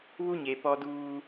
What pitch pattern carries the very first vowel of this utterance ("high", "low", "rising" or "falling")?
high